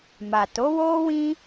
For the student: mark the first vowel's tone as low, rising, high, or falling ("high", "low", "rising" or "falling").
low